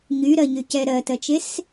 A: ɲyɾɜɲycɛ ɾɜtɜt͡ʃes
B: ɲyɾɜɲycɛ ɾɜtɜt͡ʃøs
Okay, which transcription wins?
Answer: A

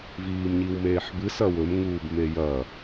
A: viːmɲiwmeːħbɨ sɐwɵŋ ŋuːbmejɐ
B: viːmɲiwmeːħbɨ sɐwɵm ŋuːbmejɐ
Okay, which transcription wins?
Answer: B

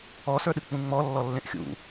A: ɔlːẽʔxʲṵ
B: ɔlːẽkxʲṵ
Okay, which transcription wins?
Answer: A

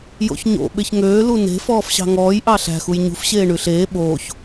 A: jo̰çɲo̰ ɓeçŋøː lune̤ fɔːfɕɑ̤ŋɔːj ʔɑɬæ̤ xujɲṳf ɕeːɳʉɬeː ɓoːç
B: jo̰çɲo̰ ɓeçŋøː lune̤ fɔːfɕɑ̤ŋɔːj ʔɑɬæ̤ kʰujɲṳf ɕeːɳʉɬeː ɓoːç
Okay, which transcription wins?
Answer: A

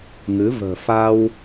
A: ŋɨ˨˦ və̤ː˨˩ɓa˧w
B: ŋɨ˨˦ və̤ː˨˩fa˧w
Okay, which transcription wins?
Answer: B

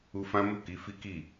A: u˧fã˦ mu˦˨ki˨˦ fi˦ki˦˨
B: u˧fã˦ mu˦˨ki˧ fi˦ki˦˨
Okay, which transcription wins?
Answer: A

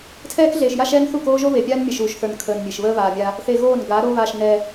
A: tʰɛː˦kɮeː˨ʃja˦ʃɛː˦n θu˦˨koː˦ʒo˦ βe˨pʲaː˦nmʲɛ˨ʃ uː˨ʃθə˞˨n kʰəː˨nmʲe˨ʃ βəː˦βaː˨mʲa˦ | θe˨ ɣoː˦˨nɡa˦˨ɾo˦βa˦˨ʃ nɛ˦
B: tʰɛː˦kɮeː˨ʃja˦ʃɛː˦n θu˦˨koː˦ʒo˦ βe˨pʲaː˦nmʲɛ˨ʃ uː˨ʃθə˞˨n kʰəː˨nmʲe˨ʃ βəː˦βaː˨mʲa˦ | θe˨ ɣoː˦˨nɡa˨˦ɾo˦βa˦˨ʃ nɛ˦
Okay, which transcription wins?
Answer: B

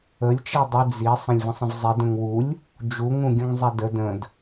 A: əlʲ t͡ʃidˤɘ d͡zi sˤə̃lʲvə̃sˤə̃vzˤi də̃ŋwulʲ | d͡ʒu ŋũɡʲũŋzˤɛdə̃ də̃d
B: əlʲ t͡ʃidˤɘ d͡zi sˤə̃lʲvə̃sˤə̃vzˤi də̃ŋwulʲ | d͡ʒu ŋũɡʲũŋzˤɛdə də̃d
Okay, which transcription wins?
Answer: B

